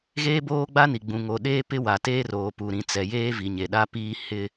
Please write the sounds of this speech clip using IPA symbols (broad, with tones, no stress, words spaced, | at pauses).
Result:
ɣeː˦boː˦ɡ͡ba˦ni˨ ɡ͡bũ˨ŋo˨ ɗeː˦pɪ˦ wa˨teː˦roː˨ pu˨ɾĩ˨ t͡sɛ˨jeː˦ vi˨ɲe˨ɗa˦ piː˦ hɪ˦